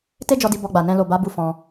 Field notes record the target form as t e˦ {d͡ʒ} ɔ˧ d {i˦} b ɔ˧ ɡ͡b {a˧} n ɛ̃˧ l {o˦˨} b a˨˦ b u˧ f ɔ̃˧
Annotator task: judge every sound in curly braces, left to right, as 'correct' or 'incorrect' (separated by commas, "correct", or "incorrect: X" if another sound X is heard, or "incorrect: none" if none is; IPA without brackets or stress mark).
correct, incorrect: i˧, incorrect: a˨, incorrect: o˨